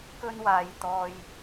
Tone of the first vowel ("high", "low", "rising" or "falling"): high